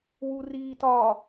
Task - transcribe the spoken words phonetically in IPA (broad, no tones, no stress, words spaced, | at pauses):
wuriːtɒ